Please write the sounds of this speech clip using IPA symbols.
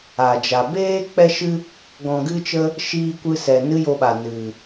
a˨ d͡ʒ a˨ b eː˦ k͡p ɛ˦ ʃ ɨ˦ | ɡ ɔ̃˧ ɡ ɨ˦ t͡ʃ ə˦ | ʃ iː˧ kʷ ɨ˧ s ɛ˨ n ɨ˦ j o˧ ɓ a˨ n ɨ˨

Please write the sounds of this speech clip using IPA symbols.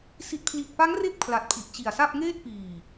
s i˨˩ t̚ pʰ l i˨˩ t̚ p a˦˥ ŋ r e˦˥ k̚ pʰ l a˨˩ t̚ pʰ i˨˩ ʔ t͡ɕ i˨˩ a̯ s a˥˩ p̚ ŋ eː˥˩ t̚ p iː˨˩

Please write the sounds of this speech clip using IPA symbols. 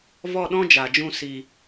v ɔ˦˨ ɗ ɔ̃˦ d͡ʒ a˨ d͡ʒ ũ˧ s i˨

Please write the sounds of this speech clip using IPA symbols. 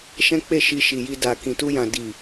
ʃ ɛ̃˦ k͡p e˦˨ ʃ i˧ ʃ i˨ j i˧ d a˨ k ĩ˨ t u˧ j ã˨ d i˨

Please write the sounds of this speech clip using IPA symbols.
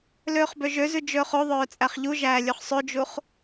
l øː χ b ø ʒ ø z ʉ d͡ʒ ɵː χ o ðˤ œː t͡sʼ æ χ ʎ u ʒ æː lʲ ʉ χ sˤ ø d͡ʒ u χ

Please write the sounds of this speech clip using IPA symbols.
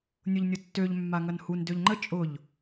nʲ ʊ ʎ nʲ ʊ tː ø ʎ mː a ŋ ɐ n h u n d ø ʎ ŋ͡ǃ ə t͡ʃʼ ʊ ʎ

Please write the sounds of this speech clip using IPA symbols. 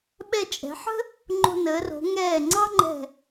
ɓ ɛ˧˩ t͡ʃʼ ɛ̤˩˧ ħ ə̤˥ | ŋ͡ǃ o̤˧ n əː˩˧ r o̤˩˧ ŋ ɛː˧˩ ŋ͡ǀ ɑ˥ ŋ͡ǃ ɛ̤˧˩

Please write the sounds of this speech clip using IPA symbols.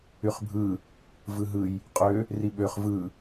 y χ bʱ ɯ | v ɯ ɦ ɯ j | qʼ ø | r i ɓ ø χ v ɯ

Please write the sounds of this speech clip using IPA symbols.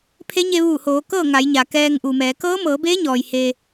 pʰ e˧˥ ɲ e˧ ʋ uː˧˩ h oː˩˧ k ɤː˥˨ ŋ a˩˧ j ɲ a˩ k ɛː˧ ŋ ʔ u˩ m ɛː˩˧ k ɤː˧˥ m ɤː˩˧ b eː˧˥ ɲ ɔː˩ j h eː˧

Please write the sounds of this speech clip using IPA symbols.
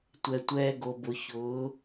tʷ ɛ˨ tʷ ɛː˧ ɡ o˨ b ʊ˨ ç ʊː˨˦

